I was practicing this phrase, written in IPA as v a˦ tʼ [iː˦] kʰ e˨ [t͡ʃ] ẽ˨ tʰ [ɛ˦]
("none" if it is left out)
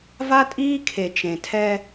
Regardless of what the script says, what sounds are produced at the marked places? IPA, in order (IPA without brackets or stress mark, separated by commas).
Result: iː˦, t͡ʃ, ɛ˦